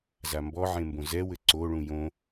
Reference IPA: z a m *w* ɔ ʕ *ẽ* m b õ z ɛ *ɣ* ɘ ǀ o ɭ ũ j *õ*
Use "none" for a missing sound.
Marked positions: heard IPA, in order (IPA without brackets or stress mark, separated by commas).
b, ẽ, w, õ